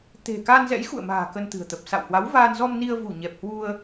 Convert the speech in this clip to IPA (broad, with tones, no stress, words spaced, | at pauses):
t̪e̤˨˩ kaː˧nzɛ̰˧˥jxṵ˧˨ə̯ma̤ː˨˩ kə˧nt̪ɨ̤˨˩ə̯t̪ə˨˩p̚ sa̰˧˨whwa˨˦w vaː˧nzɔ˧mni˧ə̯ vu˧˩ɲɛ˨˩p̚hwu˧ə̯